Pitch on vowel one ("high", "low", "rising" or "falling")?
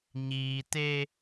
low